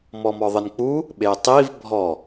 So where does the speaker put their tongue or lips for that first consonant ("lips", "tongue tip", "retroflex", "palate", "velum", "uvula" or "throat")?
lips